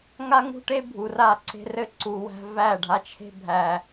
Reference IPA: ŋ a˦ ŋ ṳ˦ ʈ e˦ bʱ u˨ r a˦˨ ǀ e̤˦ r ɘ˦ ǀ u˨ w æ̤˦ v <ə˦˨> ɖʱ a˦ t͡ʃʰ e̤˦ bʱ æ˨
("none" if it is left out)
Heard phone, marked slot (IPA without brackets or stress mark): æ˦˨